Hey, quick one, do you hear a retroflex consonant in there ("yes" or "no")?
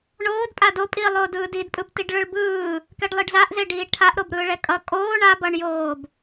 yes